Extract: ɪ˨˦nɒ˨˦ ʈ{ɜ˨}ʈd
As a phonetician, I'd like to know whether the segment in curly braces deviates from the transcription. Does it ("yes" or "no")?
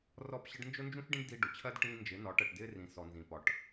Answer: no